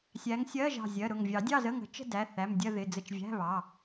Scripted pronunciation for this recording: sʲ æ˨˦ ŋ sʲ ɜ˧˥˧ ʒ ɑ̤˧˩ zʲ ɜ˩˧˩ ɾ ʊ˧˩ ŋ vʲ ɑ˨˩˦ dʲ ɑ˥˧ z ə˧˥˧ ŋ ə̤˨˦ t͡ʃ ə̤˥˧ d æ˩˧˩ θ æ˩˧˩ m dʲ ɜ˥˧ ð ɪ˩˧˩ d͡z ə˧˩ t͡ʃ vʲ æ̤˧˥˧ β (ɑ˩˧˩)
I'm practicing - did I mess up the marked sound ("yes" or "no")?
no